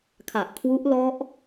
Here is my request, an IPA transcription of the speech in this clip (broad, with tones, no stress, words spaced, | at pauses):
kʰa˨˩ʔkʰwu˦˥ʔlɔ˦˥ʔ